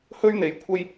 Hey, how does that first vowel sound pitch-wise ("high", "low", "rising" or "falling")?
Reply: high